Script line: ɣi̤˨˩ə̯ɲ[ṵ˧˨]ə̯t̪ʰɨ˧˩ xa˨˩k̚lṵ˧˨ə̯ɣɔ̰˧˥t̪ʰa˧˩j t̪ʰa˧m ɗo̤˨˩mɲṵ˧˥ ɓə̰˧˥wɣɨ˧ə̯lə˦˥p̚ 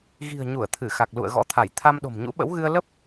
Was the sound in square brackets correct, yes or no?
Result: no